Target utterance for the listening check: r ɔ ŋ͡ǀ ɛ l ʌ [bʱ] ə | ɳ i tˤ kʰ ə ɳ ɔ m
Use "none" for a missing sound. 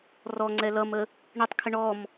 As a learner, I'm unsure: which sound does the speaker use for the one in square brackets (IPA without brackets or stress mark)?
m